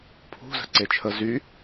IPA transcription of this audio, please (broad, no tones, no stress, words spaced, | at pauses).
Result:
pʰṳzə̤ǀe t͡ʃʰə zy